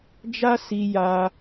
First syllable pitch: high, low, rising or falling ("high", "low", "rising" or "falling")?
high